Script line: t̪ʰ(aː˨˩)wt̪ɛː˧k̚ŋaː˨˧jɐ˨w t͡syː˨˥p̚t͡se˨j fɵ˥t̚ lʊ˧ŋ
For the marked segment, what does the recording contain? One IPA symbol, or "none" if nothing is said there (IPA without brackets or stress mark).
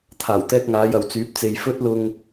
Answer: aː˨˩